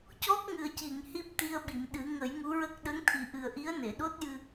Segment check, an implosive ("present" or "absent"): present